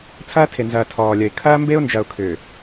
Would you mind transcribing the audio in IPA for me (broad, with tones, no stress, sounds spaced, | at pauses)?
t͡sʰ ɐː˦ tʰ e˨ n z ɐː˨ tʰ ɔː˨ lʲ ɐ˨ ɪ̯ kʰ ɐː˦ m b e˦ ʊ̯ n d͡ʒ ɐ˨ ʊ̯ kʰ ʏː˨